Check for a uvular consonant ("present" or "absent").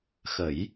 absent